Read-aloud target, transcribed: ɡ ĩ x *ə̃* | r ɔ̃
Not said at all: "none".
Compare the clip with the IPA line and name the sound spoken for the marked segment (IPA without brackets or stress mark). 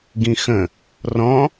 ə̃